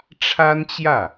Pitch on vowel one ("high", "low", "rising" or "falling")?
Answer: high